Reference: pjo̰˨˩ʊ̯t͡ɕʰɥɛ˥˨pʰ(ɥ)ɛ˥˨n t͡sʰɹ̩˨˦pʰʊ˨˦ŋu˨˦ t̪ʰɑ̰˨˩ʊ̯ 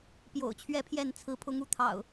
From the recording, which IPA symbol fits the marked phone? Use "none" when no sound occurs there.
j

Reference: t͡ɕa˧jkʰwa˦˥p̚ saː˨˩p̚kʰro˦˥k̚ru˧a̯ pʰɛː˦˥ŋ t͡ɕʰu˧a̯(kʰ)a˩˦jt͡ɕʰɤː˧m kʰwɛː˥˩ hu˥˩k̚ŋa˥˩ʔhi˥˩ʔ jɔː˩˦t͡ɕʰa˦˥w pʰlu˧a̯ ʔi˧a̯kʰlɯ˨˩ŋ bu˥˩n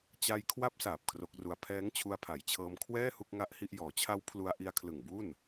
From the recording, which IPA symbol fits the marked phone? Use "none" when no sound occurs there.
pʰ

